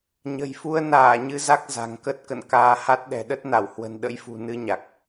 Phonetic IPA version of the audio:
ɲ ə̤˨˩ j f u˧ ə̯ n aː˧˩ ɲ ɨ˧ z a˦˥ k̚ z a̤˨˩ ŋ k ə˦˥ t̚ k ə̰˧˨ n k aː˧ h a˦˥ t̚ ɗ ɛ̤˨˩ ɗ ə˦˥ t̚ n a˧˩ w h w ə̤˨˩ n ɗ ə̰˧˥ j f ṳ˨˩ n ɨ˧ ɲ a˨˩ k̚

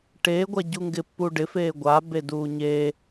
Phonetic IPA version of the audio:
ʈ eː ɡʷ a ɟ u ŋ ɡ ɪ pː u ɖ ɪ f eː ɡʷ a b e d uː ɲ e

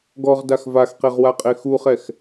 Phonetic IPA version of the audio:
ɡ ɔ ʁ d a x v a x q e ʁ w a qʼ e x u χ ɛ x

